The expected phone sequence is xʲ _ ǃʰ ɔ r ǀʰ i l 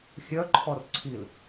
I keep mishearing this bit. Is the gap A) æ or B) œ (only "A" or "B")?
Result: B